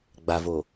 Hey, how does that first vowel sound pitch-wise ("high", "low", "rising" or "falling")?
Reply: low